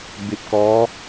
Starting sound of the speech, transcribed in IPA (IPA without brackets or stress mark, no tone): b